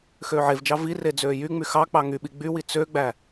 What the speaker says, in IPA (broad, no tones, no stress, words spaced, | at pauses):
xøːʕevd͡ʒɑ vire d͡zøːjyŋ͡my xɑk͡pɑ ŋyɓi ɡ͡bywi t͡søɡ͡bæ